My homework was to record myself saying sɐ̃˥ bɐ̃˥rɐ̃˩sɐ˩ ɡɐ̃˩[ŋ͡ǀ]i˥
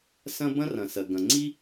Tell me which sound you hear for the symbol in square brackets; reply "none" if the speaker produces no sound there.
ŋ͡ǀ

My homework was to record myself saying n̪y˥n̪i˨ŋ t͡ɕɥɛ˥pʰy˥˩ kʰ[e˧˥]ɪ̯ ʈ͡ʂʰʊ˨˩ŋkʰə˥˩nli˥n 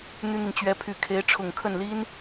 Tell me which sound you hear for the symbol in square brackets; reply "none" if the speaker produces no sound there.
e˧˥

